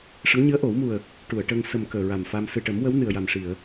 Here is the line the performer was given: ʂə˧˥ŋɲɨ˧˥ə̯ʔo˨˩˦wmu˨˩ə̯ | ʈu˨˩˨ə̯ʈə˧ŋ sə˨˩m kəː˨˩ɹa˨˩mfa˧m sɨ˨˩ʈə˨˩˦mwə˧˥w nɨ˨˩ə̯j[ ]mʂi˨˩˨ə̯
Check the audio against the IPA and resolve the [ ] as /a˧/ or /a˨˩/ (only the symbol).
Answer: a˨˩